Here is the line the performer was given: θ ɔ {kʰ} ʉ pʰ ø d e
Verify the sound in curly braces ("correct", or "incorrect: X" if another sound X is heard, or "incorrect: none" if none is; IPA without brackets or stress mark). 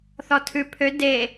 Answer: incorrect: tʰ